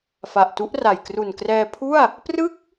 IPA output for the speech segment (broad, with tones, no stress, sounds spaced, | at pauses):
f a˨˩ ʔ t u˦˥ ʔ r a˨˩ j k r u˨˩ n k r ɛː˧ pʰ u˥˩ a̯ | p r ɯ˥˩ k̚